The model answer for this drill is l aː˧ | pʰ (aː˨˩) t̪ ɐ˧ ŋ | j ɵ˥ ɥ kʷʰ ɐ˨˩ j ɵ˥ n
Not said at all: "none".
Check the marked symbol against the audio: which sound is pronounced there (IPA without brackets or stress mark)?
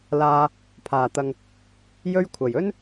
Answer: aː˨˩